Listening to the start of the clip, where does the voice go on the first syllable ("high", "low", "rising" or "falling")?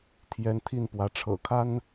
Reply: rising